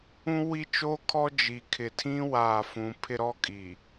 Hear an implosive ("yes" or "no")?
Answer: no